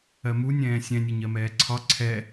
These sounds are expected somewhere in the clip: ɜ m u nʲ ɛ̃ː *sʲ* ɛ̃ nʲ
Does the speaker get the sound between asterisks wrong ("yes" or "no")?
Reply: no